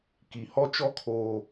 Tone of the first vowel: low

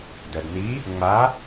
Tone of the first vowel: low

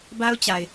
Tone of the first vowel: high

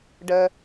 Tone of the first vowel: low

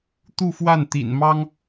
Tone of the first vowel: falling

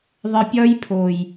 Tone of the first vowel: low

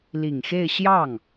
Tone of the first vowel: low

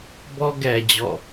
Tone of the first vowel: high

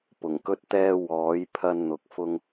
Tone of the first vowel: low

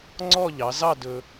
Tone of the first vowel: falling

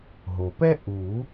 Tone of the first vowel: low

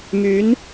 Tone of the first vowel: rising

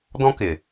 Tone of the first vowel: high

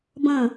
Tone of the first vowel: falling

